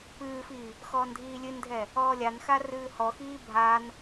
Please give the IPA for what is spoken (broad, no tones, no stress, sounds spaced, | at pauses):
p ɨː f i | x ɔː n dʱ iː lʲ ɨ n dʱ ɛ | ɔː lʲ a n x a r ɨː h ɔ x iː bʱ a n